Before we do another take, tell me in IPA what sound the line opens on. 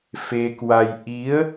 f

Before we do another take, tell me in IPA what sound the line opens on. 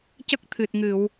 c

